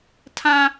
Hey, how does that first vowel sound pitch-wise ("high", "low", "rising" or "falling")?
high